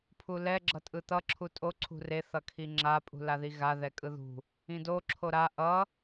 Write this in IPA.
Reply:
pʰ u l ɛ ɡ͡ǁ ʌ tʼ ɯ t̪ ʌ ǁʰ u tʼ o ǀʰ ṳ r e θ ʌ kʰ i ŋ͡ǁ a pʼ ṳ l a ð i ɣ a ð ɛ kʼ ɯ ð ṳ | ĩ d o ǁʰ o ɾ a ʔ ʌ

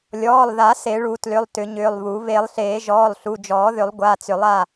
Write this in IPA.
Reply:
lʲ ɔː˩˧˩ lˠ ð a˨˩˦ s e˨˩˦ ɭ u˨˩˦ t l ʏ˩˧˩ lˠ t ʏ˨˩˦ ɲ ʏː˩˧˩ lˠ β u˨˩˦ β e˨˩˦ lˠ ɬ eː˨˩˦ ʒ ɔː˩˧˩ lˠ ɬ u˩˧˩ d͡ʒ ɔː˨˩˦ ð ʏ˨˩˦ lˠ ɡʷ a˩˧˩ t͡s ʏ˨˩˦ lˠ a˩˧˩

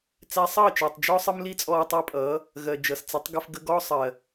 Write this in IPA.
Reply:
t͡s æ˧ sˤ ʌː˦˨ t͡ʃ ɜː˨ tˤ d͡ʒ ɔ˦ sˤ ə˦ m l i˦ t͡sʼ ɔː˧ tˤ æ˧ pʼ ʌː˨˦ | ɣ ɜ˨ d͡ʒ ʌ˨ s t͡s ɪ˨˦ tˤ ɡ ə˧ f ɡ ə˧ ɡ ɔ˦ sˤ ɜ˨

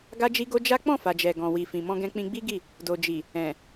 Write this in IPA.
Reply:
ɡ a˦ d͡ʒ i˦ ɡ o˦ d͡ʒ a˦ k͡p ɔ̃˦˨ f a˨ d͡ʒ ɛ˨ ɡ ɔ̃˨ w i˨ f ĩ˨ m ɔ̃˧ ɡ ɛ̃˧ k͡p ĩ˧ ɡ͡b i˦ ɡ i˦˨ | d o˨ d͡ʒ i˨ | ɛ̃˨

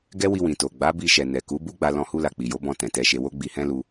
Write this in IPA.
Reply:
ɡ ɛ˦ w i˧ w ĩ˨ t o˨ ɡ͡b a˨˦ b i˧ ʃ ɛ˨ n ɛ˨ k u˨˦ b u˦ ɡ͡b a˧ l ɔ̃˦ h u˦ l a˧ k͡p i˨ j o˨˦ b ɔ̃˧ t ɛ̃˨ t ɛ˧ ʃ e˧ w o˦ ɡ͡b i˧ h ɛ̃˦ l u˧

